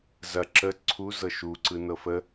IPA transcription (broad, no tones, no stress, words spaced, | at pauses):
zɐ ǁə ǀʰu zɤʃuǀɯ nɤfə